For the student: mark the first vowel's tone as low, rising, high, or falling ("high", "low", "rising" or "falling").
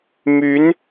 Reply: rising